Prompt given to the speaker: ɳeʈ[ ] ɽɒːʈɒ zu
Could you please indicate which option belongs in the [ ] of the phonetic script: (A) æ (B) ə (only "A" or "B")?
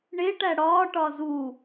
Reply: A